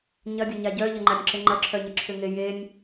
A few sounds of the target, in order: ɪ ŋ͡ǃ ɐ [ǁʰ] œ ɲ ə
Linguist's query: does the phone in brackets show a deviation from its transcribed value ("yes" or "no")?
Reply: no